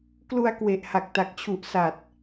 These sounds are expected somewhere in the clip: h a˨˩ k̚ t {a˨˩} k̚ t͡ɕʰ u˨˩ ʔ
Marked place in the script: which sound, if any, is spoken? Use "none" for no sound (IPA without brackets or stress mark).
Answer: a˨˩